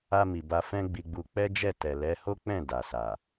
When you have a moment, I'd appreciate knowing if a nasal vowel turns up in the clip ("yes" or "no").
yes